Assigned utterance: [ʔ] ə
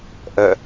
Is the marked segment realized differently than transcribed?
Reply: no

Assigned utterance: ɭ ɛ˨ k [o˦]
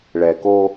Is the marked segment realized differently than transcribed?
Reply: no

